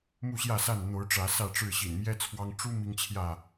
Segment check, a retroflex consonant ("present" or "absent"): present